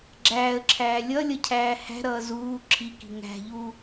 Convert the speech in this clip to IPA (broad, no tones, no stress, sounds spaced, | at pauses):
ɡ͡ǁ æː ə̯ ǁʰ æː lʲ ʌ lʲ ʌ cʰ æː h æ̤ ɾ ʌː z uː ǁʰ i k i̤ ŋ æ̤ ʎ u